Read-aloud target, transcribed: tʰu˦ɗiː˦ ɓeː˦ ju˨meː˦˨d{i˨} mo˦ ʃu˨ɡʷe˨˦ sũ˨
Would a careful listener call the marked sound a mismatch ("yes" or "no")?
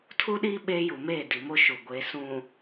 no